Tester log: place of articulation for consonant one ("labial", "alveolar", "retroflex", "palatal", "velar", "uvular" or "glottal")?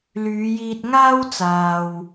alveolar